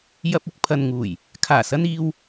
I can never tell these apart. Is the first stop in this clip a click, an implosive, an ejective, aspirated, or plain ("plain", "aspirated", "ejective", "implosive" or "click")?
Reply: plain